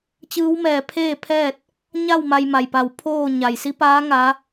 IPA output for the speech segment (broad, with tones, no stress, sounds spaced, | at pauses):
t͡ɕ ɯː˧˥ w m ɛː˧˩ pʰ eː˥˨ pʰ ɛː˥˨ t̚ | ɲ a˥˨ w m a˧ j m a˩ j p a˧˩ w pʰ oː˥˨ ɲ a˩ j s i˧˥ p aː˧˥ ŋ a˧˥